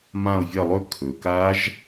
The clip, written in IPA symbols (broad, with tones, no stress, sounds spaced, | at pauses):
m ã˦˨ o̯ vʲ ɐ˦˨ lˠ ɵ˦˥ kʰ ɵ˩ k a˦˥ ʒ